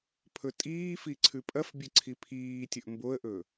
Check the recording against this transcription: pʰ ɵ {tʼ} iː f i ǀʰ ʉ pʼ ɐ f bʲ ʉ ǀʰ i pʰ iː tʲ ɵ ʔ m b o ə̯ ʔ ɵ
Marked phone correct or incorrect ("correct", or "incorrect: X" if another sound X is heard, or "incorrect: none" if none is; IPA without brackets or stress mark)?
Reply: correct